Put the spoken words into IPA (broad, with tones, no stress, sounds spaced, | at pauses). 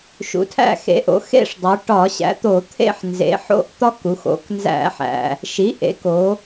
ʃ ṵ˩˥ tʰ æ̰˦˨ x ḛ˩˥ ʔ o̰˩˧ x ḛ˦˨ ʂ dˤ o˩˧ ʈ ɒ˧˩˧ ɕ æ̰˩˥ t̪ o˧˩˧ t̪ʰ ḛ˦˨ ħ n z ḛ˩˧ ħ o̰˦˨ ʔ t̪ ɒ˦ k u˩˧ x o̰˩˧ k n z æ̰˧˩˧ ħ æ̰˩ | ʃ i˩˥ ʔ ḛ˩˥ k o˩˧